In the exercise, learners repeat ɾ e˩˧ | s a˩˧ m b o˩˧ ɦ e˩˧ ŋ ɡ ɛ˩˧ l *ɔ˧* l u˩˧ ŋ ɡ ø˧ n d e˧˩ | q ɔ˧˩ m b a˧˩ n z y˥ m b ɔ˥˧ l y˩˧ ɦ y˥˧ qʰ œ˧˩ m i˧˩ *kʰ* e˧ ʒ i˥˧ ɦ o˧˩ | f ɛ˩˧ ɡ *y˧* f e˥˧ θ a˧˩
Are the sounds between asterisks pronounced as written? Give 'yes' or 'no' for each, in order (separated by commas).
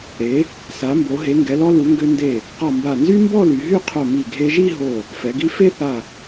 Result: yes, no, no